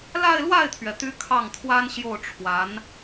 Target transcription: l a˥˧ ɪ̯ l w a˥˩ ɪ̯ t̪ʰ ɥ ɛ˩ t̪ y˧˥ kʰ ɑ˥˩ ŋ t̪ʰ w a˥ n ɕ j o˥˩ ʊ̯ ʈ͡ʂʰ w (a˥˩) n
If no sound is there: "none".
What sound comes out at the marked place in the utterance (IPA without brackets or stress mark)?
a˧˥